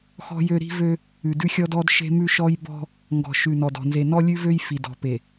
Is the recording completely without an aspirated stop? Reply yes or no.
yes